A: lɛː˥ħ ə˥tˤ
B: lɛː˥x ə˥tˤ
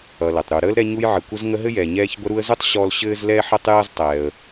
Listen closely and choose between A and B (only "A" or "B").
A